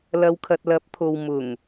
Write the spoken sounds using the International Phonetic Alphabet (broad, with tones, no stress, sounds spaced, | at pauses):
l ɐ˨ w kʰ ɐ˨ t̚ l ɐ˨˥ p̚ t̪ʰ o˨ w m ʊ˨˩ ŋ